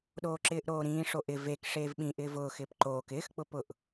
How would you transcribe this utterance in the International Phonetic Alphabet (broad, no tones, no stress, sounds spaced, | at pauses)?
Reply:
ɗ oː ǁ ɪː ʔ ɾ oː ɾ ĩː ʂ o ʔ ɪ v e k ʂ eː v ɓ ĩ ʔ ɪː v ʊː x ɪː p ǃ oː k ɪː x k͡p ʊ p ʊ ʔ